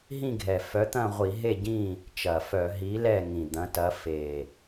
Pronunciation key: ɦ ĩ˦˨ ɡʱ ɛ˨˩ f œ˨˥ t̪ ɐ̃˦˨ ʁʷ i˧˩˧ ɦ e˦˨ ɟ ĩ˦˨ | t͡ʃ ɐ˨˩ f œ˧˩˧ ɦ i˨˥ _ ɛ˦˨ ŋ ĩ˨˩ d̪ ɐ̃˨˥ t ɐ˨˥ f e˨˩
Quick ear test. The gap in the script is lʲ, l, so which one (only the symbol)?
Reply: l